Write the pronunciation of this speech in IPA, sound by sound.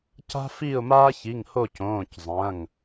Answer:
c a̤˦ f i˦˨ ʊ̯ m aː˦ ç i˩˧˩ ŋ h o˦˨ c õː˩˧˩ c zˤ ɐ̃ː˩˧˩ ŋ

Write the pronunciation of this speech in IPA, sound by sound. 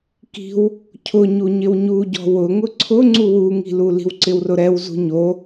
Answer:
k i̤ w | cʰ ʊ ɲ u ɲ ɪ w ɲ u ɟ ɔ̤ w ʊ ŋ ʊ ǀʰ ʊ ŋ͡ǀ u w u ŋ i̤ l u l i̤ w ǀ ɪ w r ʊ ɾ ɛ w z ṳ ɲ o

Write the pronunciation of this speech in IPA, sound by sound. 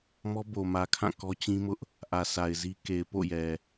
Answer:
m ɔ˦ b o˨ m ä˨ kʰ ã˦˨ k ɔ˦ t͡ɕ ĩ˦ m ʊ˦ ʔ | ʔ ä˨ sʰ a˨ ɪ̯ z i˦ k e˨ ɪ̯ p o̰˦˨ j ɛ˨

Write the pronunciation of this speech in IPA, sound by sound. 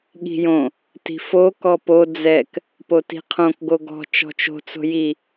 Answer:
ɠ i̤ j õ | t i̤ f o k ɔ p o d͡z ɛ k | p o t i̤ qʰ õ k ɡ o ɡ ɔ̤ t͡ʃ ɔ̤ t͡ʃ o̤ t͡s o̤ j i

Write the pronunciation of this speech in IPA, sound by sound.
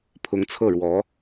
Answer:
pʰ ʊ˧˥ ŋ t͡sʰ ɤ˥˩ ɻ w ɔ˧˥

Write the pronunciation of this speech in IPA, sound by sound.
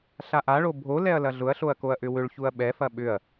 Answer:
ɬ a ʔ a ɭ o bʱ o l ɛ ɐ̯ l ɐ ɮ ʊ ɐ̯ ɬ o ɐ̯ k o ɐ̯ ʔ ʏ w ʏ ɭ ç u ɐ̯ ɓ ɛ f ɐ ɓ ʏ ɐ̯

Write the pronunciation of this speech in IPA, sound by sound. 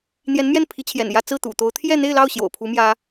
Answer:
n̪ j ɛ˧˥ n m j ɛ˥˩ n pʰ i˧˥ t͡ɕʰ j ɛ̰˨˩ n j ä˥˧ t͡s ɹ̩˥˩ t̪ ṵ˨˩ t̪ o˧˥ ʊ̯ t̪ʰ j ɛ˥˧ n̪ e˥˧ ɪ̯ l ɑ˥˩ ʊ̯ ɕ j o̰˨˩ ʊ̯ pʰ u˧˥ m j ä˥

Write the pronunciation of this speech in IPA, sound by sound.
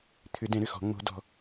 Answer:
t̪ʰ ʏ˨˩˦ d ɛ̃˨˩˦ ɾ ʏ˨˩ x ɔ̤˨˩˦ ŋ͡m o̤˨˩˦ d ɔ̤˨˩

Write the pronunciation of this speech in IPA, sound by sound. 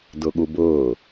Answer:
d ʊ ɠ u b ʊː

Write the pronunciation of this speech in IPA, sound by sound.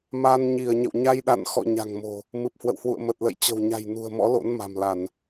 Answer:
m a˧ n ɲ i˧˩ ə̯ ɲ ə̰˧˨ w ɲ a˧ j ɗ a̰˧˨ n x ɔ̰˧˨ ɲ a̤˨˩ ŋ m o̤˨˩ | m ɨ˨˩ p̚ h w ə̰˧˨ w h w ṵ˧˨ ə̯ m ə˨˩ t̚ l ə̰˧˨ j t͡ɕ ə̤˨˩ w ɲ a̤˨˩ j n ṳ˨˩ ə̯ m ɔ̰˧˥ l o̰˧˥ n m a̤˨˩ m l a˧˩˨ n

